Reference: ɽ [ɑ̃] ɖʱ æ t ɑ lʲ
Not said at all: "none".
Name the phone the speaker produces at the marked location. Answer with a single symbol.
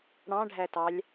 ɑ̃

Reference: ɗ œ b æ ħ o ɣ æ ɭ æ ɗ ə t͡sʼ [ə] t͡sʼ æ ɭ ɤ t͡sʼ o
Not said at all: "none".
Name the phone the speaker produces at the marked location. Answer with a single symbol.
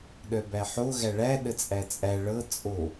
æ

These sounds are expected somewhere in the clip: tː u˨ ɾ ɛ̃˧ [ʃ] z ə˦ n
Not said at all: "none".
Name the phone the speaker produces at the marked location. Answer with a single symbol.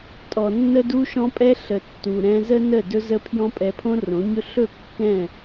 none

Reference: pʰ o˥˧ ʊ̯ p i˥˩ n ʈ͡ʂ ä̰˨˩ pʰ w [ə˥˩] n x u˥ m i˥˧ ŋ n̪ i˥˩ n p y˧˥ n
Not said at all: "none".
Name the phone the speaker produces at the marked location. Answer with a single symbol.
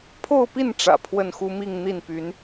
ə˥˩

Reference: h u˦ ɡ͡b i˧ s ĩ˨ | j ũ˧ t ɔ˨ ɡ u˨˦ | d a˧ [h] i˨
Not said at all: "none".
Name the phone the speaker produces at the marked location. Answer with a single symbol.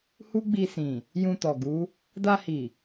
h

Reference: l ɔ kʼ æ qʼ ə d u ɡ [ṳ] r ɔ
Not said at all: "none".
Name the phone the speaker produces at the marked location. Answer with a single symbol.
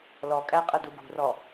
ṳ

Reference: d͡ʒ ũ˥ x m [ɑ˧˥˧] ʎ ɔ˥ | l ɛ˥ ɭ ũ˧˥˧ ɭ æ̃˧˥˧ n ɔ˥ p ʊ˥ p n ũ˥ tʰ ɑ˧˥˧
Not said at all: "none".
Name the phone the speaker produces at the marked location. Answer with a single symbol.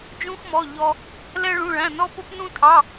ɔ˧˥˧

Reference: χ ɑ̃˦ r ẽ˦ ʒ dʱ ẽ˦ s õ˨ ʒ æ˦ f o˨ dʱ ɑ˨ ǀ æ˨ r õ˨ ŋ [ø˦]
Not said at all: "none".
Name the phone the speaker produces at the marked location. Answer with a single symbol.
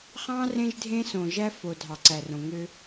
ø˦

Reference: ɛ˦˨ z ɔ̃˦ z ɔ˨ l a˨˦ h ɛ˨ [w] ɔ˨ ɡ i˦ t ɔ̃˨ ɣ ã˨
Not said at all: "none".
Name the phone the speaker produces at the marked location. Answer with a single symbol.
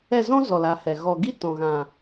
ɣ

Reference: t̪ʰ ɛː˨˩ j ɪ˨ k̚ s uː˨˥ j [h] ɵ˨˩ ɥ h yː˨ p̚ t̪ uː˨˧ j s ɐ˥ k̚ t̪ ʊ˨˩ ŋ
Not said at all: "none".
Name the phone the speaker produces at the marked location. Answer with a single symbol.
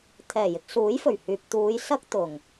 f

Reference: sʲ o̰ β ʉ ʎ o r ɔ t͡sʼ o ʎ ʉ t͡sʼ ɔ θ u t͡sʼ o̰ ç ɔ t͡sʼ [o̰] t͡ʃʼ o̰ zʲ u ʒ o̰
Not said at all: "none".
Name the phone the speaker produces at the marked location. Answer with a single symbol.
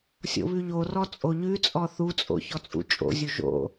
ṵ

